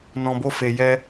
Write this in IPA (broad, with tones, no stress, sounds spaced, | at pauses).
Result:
n ɔ̃˨ b o˧ f e˨ j ɛ˧